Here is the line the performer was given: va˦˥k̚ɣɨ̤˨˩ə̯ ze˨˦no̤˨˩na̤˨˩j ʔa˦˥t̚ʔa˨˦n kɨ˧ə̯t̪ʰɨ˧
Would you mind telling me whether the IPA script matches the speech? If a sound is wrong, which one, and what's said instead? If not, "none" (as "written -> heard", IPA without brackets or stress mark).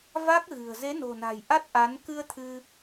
none